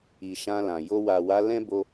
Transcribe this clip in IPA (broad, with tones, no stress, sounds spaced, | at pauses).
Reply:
i˨ ʃ ã˧ l ã˨ j o˧ w a˨ w a˨˦ l ɛ̃˦ b o˦